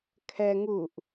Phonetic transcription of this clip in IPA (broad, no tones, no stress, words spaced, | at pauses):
kʰɛ ŋuʔ